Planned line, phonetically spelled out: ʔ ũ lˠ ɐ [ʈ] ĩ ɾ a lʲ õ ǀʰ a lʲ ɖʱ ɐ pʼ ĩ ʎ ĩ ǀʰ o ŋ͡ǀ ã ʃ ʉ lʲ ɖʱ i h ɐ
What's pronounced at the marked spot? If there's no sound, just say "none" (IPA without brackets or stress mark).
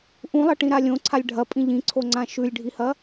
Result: ʈ